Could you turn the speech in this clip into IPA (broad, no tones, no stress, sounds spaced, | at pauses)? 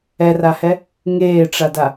ɛ r a h ɛ | ŋ eː ʈ͡ʂ a d a